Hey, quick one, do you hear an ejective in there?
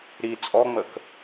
yes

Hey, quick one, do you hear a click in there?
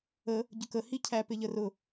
no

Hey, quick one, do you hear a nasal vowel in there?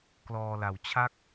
no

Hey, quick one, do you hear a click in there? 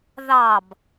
no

